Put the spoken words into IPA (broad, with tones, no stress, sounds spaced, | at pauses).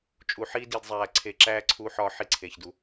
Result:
t͡ʃʼ u˧ ħ iː˥ d i˧ d zˤ æː˧ ǀʰ e˧ ǁ æː˥ ǀʰ uː˧ ħ ɒː˧ ħ i˧ ǀʰ e˩ ç d u˩